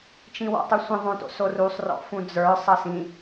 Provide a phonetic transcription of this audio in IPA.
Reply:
t͡ʃ ĩ w ɔ̰ tˤ ɨ sʷ ə̃ ðˤ õ t o̰ s o r u sˤ r ɔ̰ f ũ d͡z ə˞ sˤ ʌ s ĩ

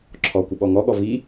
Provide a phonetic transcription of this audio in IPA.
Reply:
ǁʰ ɔ kʷ ɪ ɓ ɔ ŋ ɔ ɠ ɔ v i

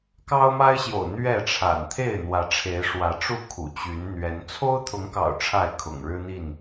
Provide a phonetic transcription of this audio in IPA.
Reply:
k ɑ˦ ʊ̯ m a˦ ɪ̯ ɕ j o̰˨˩ ʊ̯ n̪ ɥ ɛ˥˨ ʈ͡ʂʰ a̰˨˩ n t̪ʰ e˥˨ ɪ̯ n̪ w ä˨˦ ʈ͡ʂʰ e˨˦ ɪ̯ ʂ w ä˨˦ ʈ͡ʂ u˥˨ kʰ ṵ˨˩ t͡ɕ y˨˦ n n̪ ɥ ɛ˨˦ n t͡sʰ o˦ ʊ̯ t̪ʰ ʊ˨˦ ŋ k ɑ̰˨˩ ʊ̯ ʈ͡ʂʰ a˥˨ ɪ̯ kʰ ʊ̰˨˩ ŋ ɻ ɻ̩˦ n̪ i˥˨ n

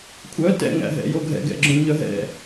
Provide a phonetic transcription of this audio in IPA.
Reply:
kʷʰ œ t ɛ̰ ŋ æ̰ ɦ ɛ̰ j o ɡʱ ɛ̰ ɡ ɛ̰ ɡ͡ǁ õ ɲ œ ɦ ɛ̰

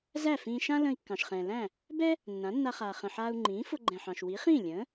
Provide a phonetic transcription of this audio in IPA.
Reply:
z æ˥˩ f ĩː˧ ʃ ã˥ l ə̃ː˧ i̯ kː ɑ̃˩ ʃ χ ɛ̃ː˩ l æ̃˥˩ | b ɛ˥ | nː ã˩˥ nː a˧ χ aː˩ χ ə̃˩ ħ aː˧ u̯ ŋ͡ǃ ĩː˩˥ f ʊ˧ ɡ͡ǃ ɛ̃˩ ħ ɑ̃˩ ʃ w i˩˥ χ ĩː˥˩ lʲ ə̃ː˩˥

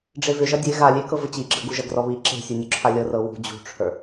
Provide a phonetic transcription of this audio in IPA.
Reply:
ɖ͡ʐ e v ʏ ʒ ɐ dʲ e ɣ a lʲ e k ɤ v ə t͡ɕ i ɡ͡ǁ ə ɡ u ʒ ɐ ɡ r ɔ β i ǁ e̤ sʲ u nʲ u ǁʰ a lʲ ɤ r ɤ w ṳ d͡ʑ ṳ ʈ͡ʂʰ ə˞

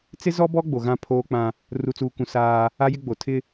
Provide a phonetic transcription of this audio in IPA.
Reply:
t͡s ɪ˦ z ɔ˦ b ɔ˦ ɡ͡b o˨ ɣ ã˦ pʰ oː˦ k͡p ã˦ | r u˨ t͡s uː˨ k ũ˨ s aː˦ | a˦ j ɪ˦ ɡ͡b o˨ tʰ ɪ˦

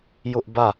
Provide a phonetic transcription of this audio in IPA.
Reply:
j ʊ˦ ʔ b ä˦˨

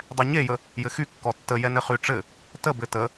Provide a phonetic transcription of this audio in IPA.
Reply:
dˤ ɛ ɲ e j ə | j ɘ x y kː ɔ tː ə j ɛ n ɘ χ y ʈ͡ʂ ɘ | t ə b ɘ t ə

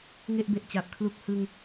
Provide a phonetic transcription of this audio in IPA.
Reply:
ŋ e˥˩ ʔ b e˨˩ ʔ t͡ɕ a˨˩ p̚ kʰ l u˥˩ k̚ h ɯ˧ ŋ

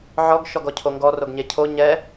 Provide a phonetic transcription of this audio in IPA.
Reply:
ʕ ɔ ɡ ʃ ɔ ɡ ɔ cʰ o ŋ ɡ ɔ r o ɡ ɲ e cʰ o ɲ ɛ

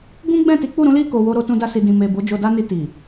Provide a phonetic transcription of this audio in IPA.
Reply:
ɡ ũ˦ ɡ͡b ɛ̃˦˨ t i˨˦ k͡p u˦˨ ɾ ũ˨˦ l i˦˨ k o˨ w o˧ ɾ o˧ t ũ˧ d a˧ s i˨ d ĩ˨ m e˨ b o˨˦ d͡ʒ o˧ d a˦ n i˧ t i˨

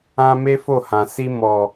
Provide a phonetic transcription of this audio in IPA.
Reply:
ã˦ m e˦ f o˦˨ h ã˨ s i˧ m ɔ˨

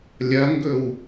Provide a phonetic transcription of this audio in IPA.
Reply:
lʲ ɐ ŋ ɡ ɵ w

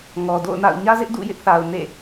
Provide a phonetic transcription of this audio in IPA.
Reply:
ŋ ɔ˨ d o̰˦˨ ʊ̯ n a̰˦˨ ʊ̯ ɲ ä˦ z ɪ˦ ʔ d ṵ˦˨ j ɪ˦ ʔ θ a˨ ʊ̯ n ḛ˦˨

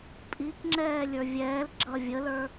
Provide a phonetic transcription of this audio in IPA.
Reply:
pʼ i k ŋ͡ǁ ɛː lʲ ə˞ vʲ ɛː l ɡ͡ǁ ʌ vʲ ə l ə˞

